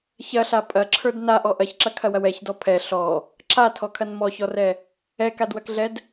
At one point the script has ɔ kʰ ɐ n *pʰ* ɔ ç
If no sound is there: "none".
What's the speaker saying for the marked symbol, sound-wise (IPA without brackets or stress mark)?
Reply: m